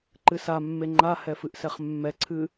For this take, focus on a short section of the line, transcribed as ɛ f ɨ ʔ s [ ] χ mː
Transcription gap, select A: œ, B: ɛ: B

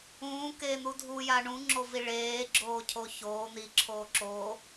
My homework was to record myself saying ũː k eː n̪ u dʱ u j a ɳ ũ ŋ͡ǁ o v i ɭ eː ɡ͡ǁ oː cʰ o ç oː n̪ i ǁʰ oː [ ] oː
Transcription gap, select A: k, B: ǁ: B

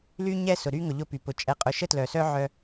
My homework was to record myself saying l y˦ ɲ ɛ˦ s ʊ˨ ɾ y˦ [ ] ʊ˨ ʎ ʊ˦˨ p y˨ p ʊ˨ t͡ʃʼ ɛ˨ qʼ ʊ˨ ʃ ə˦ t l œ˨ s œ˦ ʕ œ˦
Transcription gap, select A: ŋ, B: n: A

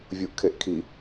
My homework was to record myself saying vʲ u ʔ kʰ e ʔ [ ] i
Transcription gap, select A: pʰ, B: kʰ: B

